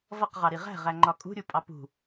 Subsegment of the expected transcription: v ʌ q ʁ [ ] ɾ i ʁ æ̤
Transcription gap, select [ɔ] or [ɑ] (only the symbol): ɑ